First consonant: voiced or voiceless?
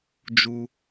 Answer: voiced